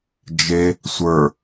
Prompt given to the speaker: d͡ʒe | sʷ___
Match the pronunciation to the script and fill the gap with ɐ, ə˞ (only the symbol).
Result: ə˞